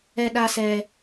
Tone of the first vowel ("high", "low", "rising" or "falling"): high